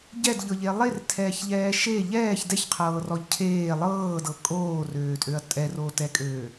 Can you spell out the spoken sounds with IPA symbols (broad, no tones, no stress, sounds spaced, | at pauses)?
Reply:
ɟ ɛ d ʎ ɤ ʎ e lˠ e r tʰ ɛː ç ʎ ɛː ʃ e ʎ ɛː ç d ɛ ç qʰ ɤː r ɔ ʎ cʰ eː lˠ ɤː d ɤ kʼ oː r øː tʼ ø ɐ̯ tʼ ɛ r o t ɛ kʼ øː